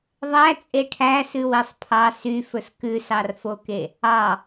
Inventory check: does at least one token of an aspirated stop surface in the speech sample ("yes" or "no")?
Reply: yes